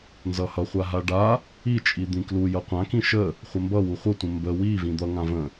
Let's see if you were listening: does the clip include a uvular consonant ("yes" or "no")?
yes